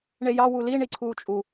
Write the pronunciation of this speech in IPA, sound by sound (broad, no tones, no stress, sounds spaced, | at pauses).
ɳ e j ɑ w u l i ɳ i ǀʰ uː t͡ʃʼ u